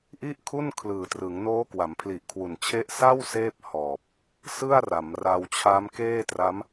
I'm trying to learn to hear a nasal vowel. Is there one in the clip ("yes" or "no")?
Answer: no